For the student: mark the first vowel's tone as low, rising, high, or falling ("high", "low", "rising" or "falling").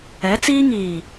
rising